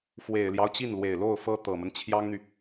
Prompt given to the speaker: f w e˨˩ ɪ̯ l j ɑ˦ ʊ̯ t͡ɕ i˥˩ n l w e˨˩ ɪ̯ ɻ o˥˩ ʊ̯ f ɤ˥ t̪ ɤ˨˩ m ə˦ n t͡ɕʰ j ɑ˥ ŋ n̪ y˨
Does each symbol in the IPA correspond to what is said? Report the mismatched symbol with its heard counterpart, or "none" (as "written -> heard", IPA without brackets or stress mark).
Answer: ɻ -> l